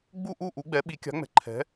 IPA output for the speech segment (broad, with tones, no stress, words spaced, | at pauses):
ɡ͡bu˥˨ʔu˥˨ ʔu˩˥ɡ͡bɛ˩˥ ɓi˩˥kʲa̤˩˥ŋ͡mɛ̤˩˥ ǃʰɛ̤˩˥